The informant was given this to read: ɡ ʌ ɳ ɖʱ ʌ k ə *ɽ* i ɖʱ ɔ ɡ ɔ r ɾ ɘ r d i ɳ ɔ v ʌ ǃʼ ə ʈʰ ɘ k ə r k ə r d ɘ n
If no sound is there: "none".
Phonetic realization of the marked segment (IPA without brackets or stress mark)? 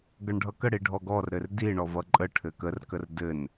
ɽ